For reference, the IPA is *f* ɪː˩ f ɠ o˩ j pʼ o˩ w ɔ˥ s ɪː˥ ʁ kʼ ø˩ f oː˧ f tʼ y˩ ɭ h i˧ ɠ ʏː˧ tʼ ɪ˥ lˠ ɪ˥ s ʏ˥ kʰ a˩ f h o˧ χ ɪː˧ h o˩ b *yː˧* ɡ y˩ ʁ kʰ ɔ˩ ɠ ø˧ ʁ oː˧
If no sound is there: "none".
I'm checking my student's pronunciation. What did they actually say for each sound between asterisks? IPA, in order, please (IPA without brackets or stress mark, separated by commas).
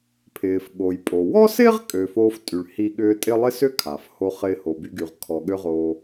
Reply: pʰ, y˧